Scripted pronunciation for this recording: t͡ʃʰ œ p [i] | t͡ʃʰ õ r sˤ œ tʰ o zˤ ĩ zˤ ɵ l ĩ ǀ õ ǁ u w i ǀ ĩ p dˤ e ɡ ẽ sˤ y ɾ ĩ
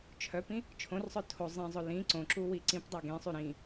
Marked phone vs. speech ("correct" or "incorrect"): incorrect